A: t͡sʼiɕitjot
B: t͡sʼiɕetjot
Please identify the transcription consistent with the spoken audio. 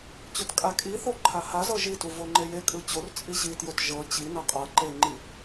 A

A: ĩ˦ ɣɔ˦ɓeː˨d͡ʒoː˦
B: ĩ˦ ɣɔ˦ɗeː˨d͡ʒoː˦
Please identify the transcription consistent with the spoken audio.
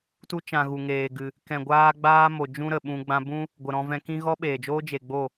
A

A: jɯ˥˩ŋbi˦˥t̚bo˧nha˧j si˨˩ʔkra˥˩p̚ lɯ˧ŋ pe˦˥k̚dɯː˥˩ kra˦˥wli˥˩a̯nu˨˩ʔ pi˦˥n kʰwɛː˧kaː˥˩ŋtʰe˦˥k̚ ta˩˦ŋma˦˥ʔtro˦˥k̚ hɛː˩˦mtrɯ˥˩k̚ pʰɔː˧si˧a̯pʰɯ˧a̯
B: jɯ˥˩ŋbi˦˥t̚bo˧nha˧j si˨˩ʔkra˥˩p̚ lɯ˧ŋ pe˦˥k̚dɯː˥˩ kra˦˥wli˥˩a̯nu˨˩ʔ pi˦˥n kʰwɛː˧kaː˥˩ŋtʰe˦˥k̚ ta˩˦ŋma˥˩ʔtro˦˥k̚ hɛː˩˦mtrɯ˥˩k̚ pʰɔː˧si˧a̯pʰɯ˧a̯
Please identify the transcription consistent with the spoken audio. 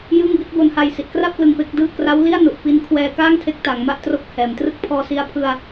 B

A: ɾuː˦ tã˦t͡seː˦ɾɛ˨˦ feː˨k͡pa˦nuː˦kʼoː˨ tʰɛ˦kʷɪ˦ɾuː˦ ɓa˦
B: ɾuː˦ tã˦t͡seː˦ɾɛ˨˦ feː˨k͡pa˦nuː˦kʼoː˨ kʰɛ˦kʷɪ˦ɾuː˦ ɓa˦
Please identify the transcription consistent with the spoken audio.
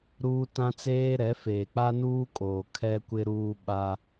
B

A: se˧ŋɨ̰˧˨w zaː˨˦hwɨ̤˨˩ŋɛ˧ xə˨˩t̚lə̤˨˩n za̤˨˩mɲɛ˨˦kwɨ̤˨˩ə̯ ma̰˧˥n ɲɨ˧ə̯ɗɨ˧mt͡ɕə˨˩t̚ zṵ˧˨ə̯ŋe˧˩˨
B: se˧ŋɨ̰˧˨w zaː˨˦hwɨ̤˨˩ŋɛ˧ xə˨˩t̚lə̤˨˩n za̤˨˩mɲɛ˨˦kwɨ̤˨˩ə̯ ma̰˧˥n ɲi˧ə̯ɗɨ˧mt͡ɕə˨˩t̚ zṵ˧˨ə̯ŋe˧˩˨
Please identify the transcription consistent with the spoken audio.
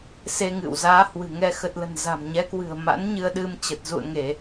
A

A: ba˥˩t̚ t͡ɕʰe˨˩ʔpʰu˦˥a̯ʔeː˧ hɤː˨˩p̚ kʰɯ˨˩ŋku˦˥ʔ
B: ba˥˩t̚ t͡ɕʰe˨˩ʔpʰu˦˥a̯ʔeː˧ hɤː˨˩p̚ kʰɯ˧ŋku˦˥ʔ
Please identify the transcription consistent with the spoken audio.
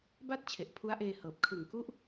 A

